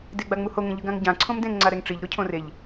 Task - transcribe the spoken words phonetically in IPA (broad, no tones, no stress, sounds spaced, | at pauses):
d e ɡ͡b a ŋ͡m u h o ŋ ẽ ʎ ɯ ɡ ã ŋ ɟ ã ǀʰ õ m d ẽ ŋ ŋ͡ǀ a ɾ ɛ ŋ ʈ͡ʂ i ʎ ɾ o cʰ õ r e ʎ